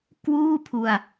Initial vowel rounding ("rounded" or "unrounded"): rounded